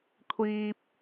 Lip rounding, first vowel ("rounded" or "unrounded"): unrounded